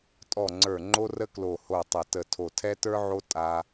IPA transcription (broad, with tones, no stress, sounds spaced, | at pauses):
tʼ ɔ˨˩ ŋ͡ǀ ə˞˨˩ ŋ͡ǃ o˧ r ə˧ k l o˨˩ h o˨˩ tˤ ə˨˩ t ə˨˩ tʰ o˨˩ tʰ ɛ˧ t ə˞˧ ʕ o˧ tʼ a˧